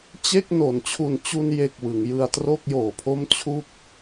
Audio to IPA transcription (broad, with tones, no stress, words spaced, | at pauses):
t͡ɕe˥˩k̚ no˩˦nt͡ɕʰu˨˩n t͡ɕu˧nje˨˩k̚ wɯ˩˦ŋjɯ˧a̯ tro˥˩k̚joː˨˩pʰo˥˩m t͡ɕʰu˥˩k̚